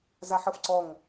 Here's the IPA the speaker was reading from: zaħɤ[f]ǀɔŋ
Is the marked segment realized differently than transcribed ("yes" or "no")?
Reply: no